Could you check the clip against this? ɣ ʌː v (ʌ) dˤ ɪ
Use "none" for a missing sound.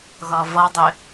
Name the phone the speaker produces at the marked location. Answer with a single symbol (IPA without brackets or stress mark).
ʌ